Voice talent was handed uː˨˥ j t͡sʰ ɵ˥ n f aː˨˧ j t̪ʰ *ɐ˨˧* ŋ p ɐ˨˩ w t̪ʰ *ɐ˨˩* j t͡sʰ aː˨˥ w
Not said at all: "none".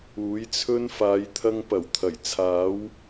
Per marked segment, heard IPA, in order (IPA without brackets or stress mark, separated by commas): ɐ˧, ɐ˨˩